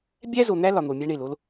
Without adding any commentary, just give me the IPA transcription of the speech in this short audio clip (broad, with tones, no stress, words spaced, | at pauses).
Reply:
bʲæ˦zo˨n̪æ˦ lɒ˨n̪o˨mʲæ˦ ɳe˨lo˦l